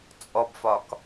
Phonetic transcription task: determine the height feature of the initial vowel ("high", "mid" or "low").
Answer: mid